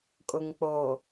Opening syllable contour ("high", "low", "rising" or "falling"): low